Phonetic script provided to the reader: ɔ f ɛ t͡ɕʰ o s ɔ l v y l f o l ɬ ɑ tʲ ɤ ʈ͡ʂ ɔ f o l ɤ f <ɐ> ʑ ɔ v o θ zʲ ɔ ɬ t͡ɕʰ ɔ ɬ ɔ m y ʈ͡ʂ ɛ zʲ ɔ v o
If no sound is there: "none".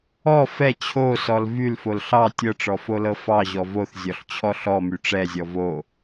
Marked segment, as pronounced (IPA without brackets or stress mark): ɑ